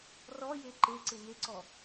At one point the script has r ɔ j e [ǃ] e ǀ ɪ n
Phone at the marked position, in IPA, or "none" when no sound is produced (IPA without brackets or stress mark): ǃ